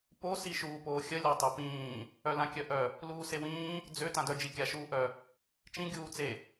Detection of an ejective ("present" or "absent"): absent